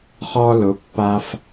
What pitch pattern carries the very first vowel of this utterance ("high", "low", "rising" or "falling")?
high